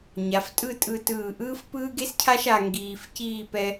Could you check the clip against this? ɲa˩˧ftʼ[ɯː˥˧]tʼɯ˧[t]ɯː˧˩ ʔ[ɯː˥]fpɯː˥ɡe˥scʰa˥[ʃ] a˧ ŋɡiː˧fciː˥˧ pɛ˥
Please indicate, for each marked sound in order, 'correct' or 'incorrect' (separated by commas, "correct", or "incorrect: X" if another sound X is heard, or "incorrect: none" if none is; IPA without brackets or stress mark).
incorrect: ɯ˥˧, correct, correct, correct